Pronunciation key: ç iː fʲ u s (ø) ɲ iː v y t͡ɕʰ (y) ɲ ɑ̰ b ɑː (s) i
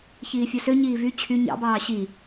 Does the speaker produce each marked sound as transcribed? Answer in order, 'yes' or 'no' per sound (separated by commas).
yes, yes, no